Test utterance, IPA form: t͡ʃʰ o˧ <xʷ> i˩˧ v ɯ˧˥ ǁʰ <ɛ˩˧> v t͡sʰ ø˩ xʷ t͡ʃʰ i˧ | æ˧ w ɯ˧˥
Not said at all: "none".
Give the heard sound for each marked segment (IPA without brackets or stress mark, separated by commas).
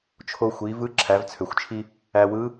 xʷ, æ˩˧